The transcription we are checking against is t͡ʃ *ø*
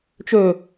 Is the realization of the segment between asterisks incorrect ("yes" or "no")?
no